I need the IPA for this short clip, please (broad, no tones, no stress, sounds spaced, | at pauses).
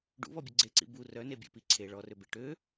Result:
ɖ ṵ β ɔ bʲ ʊ ɡ͡ǀ e ǀ ḭ b u r œ n e bʲ ḛ p i ǀʰ e ɭ ɔ r ø b e ʈ ø